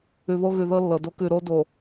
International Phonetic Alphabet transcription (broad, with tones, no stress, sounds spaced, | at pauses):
ʉ˨ β o˦ ɣ ʉ˨ ð ɤ˦ lː ɤ˨ d o˦ k ʉ˦˨ ɾ o˦ d o˨